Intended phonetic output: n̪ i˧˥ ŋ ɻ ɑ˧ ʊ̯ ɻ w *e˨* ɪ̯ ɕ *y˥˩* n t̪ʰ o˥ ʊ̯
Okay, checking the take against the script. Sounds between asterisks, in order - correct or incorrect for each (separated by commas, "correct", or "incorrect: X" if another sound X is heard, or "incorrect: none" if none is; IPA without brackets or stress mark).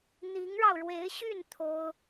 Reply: incorrect: e˧˥, correct